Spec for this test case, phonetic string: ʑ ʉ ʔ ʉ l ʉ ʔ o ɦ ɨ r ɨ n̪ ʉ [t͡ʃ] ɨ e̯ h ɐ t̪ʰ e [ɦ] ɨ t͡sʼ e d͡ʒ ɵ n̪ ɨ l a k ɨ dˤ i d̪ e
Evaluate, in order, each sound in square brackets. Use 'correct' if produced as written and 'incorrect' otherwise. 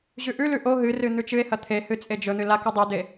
correct, incorrect: h

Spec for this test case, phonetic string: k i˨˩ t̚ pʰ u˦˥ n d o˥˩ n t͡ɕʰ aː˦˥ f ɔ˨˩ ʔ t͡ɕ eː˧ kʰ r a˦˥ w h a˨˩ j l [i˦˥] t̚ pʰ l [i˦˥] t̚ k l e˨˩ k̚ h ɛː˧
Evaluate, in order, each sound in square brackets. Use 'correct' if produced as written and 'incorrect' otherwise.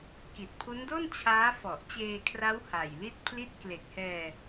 incorrect: i˥˩, correct

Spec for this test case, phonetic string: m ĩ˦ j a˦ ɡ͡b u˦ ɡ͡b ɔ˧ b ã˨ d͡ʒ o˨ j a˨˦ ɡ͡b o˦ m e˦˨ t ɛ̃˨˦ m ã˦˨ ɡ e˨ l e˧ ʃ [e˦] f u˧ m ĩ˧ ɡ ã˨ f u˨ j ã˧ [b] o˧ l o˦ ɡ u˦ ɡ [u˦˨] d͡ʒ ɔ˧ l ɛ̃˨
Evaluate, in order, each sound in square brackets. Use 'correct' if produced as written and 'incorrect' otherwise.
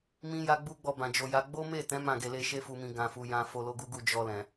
correct, incorrect: f, correct

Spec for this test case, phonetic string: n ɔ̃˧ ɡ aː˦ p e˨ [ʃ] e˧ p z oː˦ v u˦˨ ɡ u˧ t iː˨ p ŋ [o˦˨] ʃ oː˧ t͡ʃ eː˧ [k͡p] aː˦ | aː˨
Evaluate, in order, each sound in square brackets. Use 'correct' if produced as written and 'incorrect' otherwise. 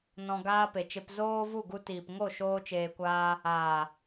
incorrect: t͡ʃ, correct, incorrect: kʷ

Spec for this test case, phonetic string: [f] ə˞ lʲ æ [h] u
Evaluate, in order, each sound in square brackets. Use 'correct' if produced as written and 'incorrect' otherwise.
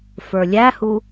correct, correct

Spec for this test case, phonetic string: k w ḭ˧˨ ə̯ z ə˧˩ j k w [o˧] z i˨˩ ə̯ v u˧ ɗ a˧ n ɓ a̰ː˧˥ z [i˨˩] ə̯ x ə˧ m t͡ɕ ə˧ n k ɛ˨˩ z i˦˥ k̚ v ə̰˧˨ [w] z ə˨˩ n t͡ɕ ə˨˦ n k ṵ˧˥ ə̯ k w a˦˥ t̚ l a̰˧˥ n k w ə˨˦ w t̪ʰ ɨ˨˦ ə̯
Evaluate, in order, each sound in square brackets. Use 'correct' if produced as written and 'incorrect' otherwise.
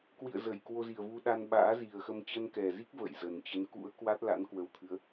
correct, correct, incorrect: j

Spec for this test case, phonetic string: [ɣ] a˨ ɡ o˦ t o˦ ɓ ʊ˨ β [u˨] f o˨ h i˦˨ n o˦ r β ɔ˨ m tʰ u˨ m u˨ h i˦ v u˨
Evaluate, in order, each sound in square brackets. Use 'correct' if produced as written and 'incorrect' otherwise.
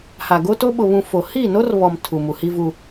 incorrect: h, incorrect: ũ˨

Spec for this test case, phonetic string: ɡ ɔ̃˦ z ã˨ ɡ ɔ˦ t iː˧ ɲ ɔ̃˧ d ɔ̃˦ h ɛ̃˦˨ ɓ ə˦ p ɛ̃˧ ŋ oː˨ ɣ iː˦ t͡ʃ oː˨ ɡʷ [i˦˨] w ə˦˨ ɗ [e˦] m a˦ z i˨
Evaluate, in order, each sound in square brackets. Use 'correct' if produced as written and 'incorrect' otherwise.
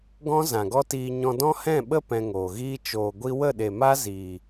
incorrect: i˧, incorrect: e˨

